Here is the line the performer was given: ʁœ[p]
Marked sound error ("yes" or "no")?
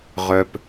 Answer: no